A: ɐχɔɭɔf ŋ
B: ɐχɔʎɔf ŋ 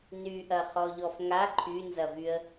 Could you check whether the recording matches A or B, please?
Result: B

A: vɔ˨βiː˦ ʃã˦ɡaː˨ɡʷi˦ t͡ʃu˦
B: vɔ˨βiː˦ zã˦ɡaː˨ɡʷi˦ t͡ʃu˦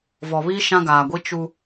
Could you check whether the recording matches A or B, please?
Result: A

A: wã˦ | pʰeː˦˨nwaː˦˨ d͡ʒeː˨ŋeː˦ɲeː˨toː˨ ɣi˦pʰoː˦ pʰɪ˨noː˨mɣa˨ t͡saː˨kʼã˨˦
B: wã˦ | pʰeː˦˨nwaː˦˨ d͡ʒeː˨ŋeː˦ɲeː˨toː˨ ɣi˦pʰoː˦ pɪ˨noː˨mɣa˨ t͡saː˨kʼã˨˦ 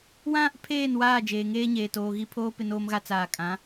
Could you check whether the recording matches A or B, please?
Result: B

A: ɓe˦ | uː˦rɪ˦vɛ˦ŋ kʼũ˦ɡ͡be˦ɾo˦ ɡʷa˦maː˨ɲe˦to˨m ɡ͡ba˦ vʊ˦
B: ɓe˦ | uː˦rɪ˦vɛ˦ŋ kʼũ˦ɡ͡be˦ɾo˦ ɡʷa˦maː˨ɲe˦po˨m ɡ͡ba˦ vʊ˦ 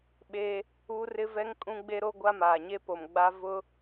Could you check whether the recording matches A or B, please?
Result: B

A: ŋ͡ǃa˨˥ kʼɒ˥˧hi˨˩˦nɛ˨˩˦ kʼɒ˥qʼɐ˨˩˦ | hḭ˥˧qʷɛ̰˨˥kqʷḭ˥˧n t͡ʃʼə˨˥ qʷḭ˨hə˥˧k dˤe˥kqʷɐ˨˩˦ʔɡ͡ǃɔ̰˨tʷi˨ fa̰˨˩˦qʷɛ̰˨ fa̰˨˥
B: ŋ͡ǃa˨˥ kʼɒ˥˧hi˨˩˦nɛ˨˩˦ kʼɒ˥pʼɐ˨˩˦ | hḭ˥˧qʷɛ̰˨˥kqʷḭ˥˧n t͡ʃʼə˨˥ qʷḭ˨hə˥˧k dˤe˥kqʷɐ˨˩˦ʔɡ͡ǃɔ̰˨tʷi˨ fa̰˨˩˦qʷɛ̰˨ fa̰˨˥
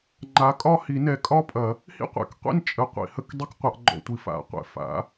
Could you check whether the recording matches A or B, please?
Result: B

